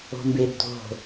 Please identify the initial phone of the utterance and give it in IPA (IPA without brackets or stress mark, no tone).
o̤